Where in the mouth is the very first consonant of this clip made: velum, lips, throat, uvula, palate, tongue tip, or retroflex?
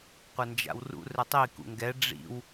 uvula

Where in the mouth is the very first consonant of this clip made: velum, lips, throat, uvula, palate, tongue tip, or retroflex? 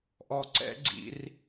throat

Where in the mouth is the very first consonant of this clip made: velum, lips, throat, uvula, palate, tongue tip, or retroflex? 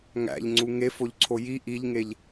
velum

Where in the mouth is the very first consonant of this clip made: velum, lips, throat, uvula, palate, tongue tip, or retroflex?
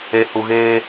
throat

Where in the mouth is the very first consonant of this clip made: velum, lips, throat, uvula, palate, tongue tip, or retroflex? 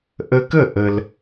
throat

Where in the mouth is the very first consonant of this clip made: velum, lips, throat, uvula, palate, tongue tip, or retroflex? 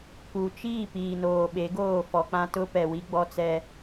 velum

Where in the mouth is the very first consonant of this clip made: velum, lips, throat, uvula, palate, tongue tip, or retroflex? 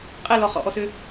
uvula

